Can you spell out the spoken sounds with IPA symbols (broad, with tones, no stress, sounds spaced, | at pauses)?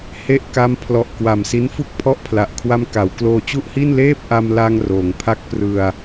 h e˦˥ ʔ k a˦˥ m pʰ l ɔ˨˩ ʔ k w a˨˩ m s i˦˥ n f u˥˩ k̚ pʰ ɔ˥˩ ʔ pʰ l a˨˩ ʔ kʰ w a˧ m k a˩˦ w k l oː˧ t͡ɕ u˥˩ ʔ h i˥˩ n l eː˥˩ p̚ ʔ a˧ m l a˧ ŋ r oː˩˦ ŋ pʰ a˥˩ k̚ p r ɯ˧ a̯